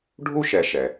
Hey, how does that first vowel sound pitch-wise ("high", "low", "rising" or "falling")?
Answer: high